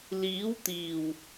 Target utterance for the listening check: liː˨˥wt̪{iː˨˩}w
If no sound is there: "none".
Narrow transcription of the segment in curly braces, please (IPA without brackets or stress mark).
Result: iː˨˩